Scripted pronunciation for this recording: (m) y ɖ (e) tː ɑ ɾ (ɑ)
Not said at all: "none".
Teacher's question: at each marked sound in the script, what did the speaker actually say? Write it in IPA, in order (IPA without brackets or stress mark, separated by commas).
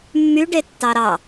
mː, e, ɑ